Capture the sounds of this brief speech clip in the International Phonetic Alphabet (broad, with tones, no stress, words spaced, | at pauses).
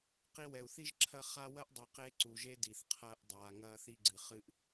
qi˧wɛ˨u̯θi˦ʒǁʰɐ˦˨ χa˧ wɐ˦ʔdˤi˨qeː˧ ǀu˨ʒe˧ di˨θqʰɐː˧ʔ dˤaː˨ ŋɐː˧θi˧ɡ͡ǀɨ˨ χɨ˧ʔ